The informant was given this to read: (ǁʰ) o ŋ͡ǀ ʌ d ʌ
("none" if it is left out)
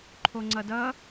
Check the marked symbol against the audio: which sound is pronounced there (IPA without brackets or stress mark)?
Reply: ǃʰ